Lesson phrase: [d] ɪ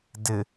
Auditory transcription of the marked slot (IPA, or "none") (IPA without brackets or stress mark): d